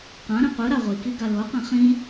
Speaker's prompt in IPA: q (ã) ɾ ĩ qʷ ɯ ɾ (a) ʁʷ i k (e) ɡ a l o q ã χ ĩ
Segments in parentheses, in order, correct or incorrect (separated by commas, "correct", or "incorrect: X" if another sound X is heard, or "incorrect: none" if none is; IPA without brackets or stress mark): correct, correct, incorrect: i